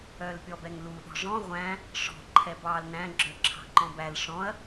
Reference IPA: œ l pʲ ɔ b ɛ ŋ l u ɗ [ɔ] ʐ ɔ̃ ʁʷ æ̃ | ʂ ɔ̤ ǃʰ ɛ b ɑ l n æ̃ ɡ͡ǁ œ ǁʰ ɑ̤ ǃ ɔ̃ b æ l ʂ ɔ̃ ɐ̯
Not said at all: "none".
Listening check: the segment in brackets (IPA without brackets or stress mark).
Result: ɔ̤